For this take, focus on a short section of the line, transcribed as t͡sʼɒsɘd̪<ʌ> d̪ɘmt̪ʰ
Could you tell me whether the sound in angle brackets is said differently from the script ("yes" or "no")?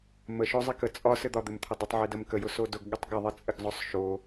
yes